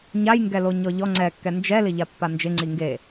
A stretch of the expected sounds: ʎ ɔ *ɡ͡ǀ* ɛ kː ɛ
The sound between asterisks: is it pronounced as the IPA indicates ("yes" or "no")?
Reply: no